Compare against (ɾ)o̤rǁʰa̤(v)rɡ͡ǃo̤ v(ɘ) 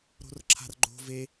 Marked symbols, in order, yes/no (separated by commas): yes, no, no